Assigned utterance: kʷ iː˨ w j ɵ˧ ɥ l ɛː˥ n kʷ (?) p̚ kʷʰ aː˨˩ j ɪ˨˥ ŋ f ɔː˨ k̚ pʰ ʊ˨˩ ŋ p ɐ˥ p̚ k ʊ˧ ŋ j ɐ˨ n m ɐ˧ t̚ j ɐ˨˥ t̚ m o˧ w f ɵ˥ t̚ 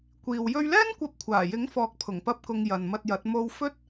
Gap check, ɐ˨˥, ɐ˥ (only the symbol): ɐ˨˥